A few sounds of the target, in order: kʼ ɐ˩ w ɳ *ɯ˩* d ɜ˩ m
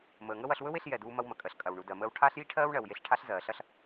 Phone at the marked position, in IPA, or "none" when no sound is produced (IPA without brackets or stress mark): u˩